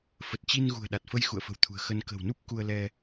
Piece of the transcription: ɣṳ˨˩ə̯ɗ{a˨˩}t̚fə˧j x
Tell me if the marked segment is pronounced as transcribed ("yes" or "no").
yes